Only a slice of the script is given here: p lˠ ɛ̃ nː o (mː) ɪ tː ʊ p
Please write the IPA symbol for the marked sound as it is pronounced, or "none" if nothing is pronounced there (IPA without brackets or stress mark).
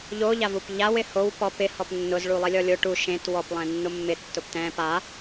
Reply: mː